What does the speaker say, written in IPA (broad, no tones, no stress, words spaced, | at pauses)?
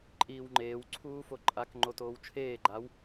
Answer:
ǃʼiːwŋ͡ǃeːw ǀʰuːfoǃʼak ŋ͡ǃotoːwt͡ʃʰeː ɡ͡ǃaw